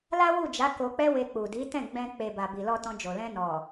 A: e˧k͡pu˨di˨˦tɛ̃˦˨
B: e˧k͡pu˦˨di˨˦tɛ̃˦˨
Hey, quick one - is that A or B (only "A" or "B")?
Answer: A